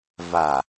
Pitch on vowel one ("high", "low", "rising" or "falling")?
low